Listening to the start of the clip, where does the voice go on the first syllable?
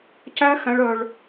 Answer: high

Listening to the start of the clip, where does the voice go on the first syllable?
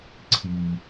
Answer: low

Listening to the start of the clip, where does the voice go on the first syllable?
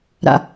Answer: low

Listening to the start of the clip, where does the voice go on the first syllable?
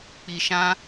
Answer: low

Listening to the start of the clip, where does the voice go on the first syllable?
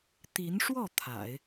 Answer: rising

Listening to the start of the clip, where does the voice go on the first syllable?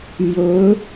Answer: rising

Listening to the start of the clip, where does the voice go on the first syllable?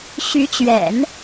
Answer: rising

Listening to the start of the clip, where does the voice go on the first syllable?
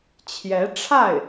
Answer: rising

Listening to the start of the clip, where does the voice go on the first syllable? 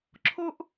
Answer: high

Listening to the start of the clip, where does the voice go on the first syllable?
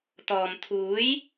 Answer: low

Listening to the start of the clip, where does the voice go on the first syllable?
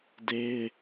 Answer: high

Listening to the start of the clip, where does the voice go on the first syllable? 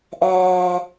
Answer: low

